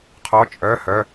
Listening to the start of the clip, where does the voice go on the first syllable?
rising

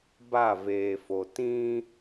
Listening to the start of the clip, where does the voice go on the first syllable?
falling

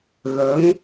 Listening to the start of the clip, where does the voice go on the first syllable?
rising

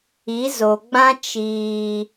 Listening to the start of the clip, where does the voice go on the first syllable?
rising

